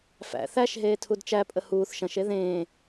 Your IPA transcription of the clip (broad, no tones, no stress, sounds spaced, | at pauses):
f æ̰ θ æ ʃ ɦ eː tʰ u d t͡ʃ æ pʼ ə h uː θ ʃ ɐ̃ ʃ e ð ẽː